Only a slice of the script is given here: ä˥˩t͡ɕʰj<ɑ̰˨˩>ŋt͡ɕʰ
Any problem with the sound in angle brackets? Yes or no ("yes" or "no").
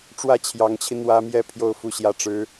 yes